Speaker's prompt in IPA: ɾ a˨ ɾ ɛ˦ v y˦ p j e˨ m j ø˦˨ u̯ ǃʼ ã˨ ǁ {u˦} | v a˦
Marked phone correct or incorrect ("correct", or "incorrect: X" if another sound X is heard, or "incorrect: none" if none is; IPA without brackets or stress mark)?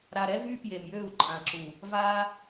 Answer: incorrect: u˨